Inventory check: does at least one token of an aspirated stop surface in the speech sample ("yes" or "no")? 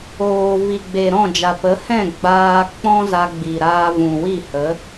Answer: no